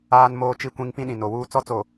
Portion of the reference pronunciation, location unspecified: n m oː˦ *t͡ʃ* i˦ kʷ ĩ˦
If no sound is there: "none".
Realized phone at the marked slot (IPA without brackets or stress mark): t͡ʃ